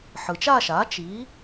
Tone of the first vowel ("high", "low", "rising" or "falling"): low